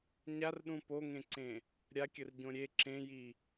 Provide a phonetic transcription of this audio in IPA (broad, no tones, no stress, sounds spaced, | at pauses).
ɲ a r ɗ ũ p o ŋ ẽ ǀ ẽ | ɾʲ a kʲ ə r ɟ õ ɾʲ e ǁ ẽ j i